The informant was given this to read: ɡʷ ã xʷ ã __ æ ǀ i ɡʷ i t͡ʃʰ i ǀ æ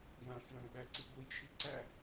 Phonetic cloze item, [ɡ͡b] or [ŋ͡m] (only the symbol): ɡ͡b